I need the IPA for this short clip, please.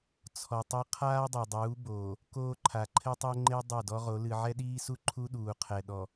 t͡sʰ ɔ˨ tˤ ɐ˦ qʰ aː˦ dˤ e˨ dˤ uː˨˦ b oː˨ | k oː˦ ǃʰ a˨ ǃʰ ɘ˦ tˤ o˦ ŋ͡ǃ e˦ dˤ ɐ˦˨ d ɔ˦ ʁ o˨˦ l ɨ˨ ʕ ɛ˦ ɗ iː˦ s u˦ ǃʰ u˦ ɗ uː˨ qʰ ɛ˨ ɗ ɔ˨

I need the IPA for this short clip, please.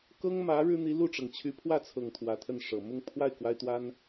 k ɤ˥ ŋ m ä˧˥ ɻ ɻ̩˥ n̪ i˧˥ l u˥˩ ʈ͡ʂ ɤ˩ ŋ t͡ɕʰ y˧˥ pʰ w ä˥˩ t͡sʰ ɤ˨˩ ŋ t̪ʰ w ä˧˥ t̪ʰ ə˥˩ n ʂ ɤ˨˩ m ʊ˥˧ ŋ pʰ w a˥˩ ɪ̯ k w a˥ ɪ̯ t̪ w a˥ n

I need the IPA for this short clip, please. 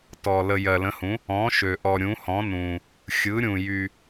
t ɔ˨ l ə˨ j ɜ˨ l ə̃˨˦ h ũ˨˦ | ɔ̃˨˦ ʃ ø˨ ʔ ɔ˨ ɾʲ ũ˨˦ h ɔ̃˨˦ n ũ˨ | xʲ ɯ˨˦ ɾʲ ũ˨ j y˨

